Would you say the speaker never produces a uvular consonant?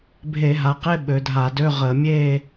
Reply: no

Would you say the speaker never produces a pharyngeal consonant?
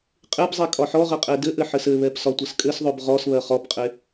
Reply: no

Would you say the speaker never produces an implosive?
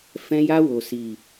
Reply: yes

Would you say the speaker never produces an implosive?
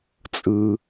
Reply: yes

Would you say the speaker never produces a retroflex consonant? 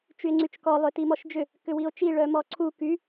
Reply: no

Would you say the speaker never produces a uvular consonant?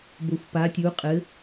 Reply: no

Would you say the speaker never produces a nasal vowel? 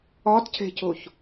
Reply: yes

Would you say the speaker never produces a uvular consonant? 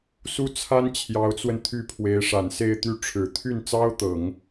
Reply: yes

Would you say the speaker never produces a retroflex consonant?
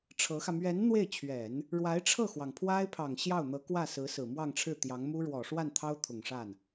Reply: no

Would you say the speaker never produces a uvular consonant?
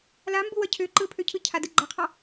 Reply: no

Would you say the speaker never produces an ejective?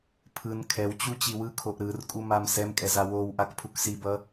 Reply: no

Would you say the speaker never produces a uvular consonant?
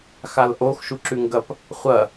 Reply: no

